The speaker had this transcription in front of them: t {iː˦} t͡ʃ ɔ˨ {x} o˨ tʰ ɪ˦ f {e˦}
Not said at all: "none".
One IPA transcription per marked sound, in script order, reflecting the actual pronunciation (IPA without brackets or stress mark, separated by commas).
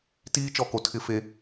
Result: iː˦, k, e˦